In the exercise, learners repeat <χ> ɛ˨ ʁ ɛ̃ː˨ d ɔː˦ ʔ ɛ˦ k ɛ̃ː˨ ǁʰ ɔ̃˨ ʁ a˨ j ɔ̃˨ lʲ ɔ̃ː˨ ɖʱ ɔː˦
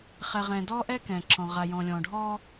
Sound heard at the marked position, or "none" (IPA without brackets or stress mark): χ